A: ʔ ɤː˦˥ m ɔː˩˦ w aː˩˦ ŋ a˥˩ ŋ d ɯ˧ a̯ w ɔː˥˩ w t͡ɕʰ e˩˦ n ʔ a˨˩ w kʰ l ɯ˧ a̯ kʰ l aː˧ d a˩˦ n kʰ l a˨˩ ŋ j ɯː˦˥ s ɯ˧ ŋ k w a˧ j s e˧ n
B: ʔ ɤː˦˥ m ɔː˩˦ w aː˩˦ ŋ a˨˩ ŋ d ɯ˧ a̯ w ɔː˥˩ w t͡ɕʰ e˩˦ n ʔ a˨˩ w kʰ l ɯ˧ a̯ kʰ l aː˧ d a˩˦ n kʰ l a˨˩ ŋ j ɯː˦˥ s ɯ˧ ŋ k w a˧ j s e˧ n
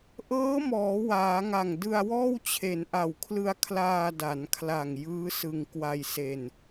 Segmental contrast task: B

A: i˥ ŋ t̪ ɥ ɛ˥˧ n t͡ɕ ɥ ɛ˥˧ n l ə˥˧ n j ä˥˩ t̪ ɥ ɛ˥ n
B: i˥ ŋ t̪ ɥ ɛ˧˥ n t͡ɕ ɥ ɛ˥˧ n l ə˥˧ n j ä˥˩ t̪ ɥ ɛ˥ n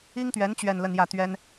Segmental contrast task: B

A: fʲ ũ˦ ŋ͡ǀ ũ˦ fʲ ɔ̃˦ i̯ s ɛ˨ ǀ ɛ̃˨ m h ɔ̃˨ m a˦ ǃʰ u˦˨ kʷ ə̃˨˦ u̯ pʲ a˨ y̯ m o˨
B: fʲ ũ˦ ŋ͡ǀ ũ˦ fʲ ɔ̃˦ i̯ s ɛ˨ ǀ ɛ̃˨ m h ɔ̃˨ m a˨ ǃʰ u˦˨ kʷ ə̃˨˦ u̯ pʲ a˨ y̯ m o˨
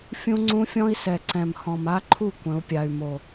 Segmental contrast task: A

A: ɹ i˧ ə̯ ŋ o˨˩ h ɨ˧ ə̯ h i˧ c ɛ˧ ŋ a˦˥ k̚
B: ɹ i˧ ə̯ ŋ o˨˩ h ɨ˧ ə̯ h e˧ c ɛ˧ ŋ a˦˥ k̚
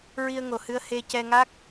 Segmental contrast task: B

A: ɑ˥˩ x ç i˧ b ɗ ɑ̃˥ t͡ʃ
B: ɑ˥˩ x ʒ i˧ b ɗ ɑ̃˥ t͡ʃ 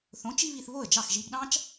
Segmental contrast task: B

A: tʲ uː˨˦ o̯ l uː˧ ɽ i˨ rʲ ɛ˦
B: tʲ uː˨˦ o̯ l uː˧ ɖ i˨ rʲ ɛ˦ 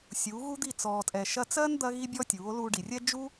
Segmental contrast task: B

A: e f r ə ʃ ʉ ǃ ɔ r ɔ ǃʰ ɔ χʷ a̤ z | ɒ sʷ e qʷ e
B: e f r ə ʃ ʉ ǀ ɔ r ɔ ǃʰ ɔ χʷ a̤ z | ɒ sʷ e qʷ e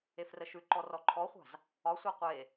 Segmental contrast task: A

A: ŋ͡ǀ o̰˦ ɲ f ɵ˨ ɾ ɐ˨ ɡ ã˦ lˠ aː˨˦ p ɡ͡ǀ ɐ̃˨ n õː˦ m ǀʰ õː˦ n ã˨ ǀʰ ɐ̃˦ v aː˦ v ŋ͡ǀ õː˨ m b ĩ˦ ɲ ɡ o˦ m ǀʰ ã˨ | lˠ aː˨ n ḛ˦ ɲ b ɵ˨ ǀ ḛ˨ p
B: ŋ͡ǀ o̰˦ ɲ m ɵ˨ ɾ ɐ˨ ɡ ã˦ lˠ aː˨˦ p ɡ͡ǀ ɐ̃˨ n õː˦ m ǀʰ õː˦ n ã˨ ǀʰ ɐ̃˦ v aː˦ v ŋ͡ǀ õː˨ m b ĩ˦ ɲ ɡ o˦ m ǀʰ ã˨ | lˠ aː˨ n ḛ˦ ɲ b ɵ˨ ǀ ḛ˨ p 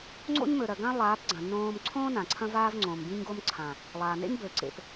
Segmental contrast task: B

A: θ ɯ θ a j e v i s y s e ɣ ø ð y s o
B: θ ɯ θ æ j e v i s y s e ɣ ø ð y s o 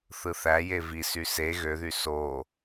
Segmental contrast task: B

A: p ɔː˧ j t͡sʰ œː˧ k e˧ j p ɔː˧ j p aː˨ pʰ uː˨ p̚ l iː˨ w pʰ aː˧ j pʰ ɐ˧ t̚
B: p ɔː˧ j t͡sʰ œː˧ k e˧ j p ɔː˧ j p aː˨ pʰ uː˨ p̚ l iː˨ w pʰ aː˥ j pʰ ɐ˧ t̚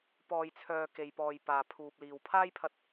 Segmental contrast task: B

